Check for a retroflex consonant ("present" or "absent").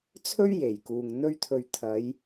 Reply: absent